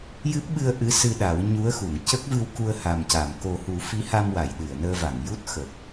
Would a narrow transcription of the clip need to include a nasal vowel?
no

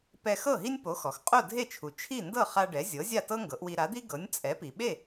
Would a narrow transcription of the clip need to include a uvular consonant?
yes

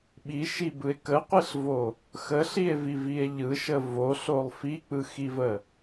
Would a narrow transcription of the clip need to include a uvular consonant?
yes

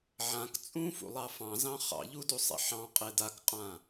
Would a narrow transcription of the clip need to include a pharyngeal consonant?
yes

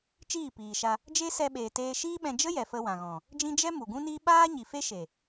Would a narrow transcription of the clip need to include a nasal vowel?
yes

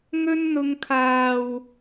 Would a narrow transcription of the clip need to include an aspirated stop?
yes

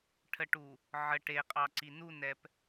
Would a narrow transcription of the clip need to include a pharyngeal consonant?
yes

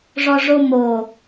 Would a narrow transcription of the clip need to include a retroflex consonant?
yes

